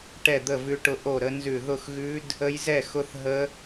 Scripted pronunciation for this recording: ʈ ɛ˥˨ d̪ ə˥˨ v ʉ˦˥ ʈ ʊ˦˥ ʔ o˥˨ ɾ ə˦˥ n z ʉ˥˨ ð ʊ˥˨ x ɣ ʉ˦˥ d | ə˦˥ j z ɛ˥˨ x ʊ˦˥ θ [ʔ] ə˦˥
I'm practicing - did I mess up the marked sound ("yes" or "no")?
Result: yes